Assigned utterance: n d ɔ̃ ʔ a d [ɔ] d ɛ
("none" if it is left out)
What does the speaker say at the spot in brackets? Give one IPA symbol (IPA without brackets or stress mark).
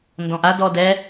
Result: ɔ